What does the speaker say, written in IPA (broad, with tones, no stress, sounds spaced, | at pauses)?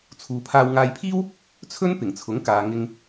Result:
t͡sʰ uː˨ pʰ aː˧ w ŋ aː˧ j pʰ iː˥ w | t͡sʰ ɵ˥ n p ɪ˨˩ ŋ t͡sʰ ʊ˨˥ ŋ k aː˨ ŋ ɪ˨ ŋ